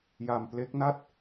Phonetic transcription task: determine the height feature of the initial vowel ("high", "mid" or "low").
low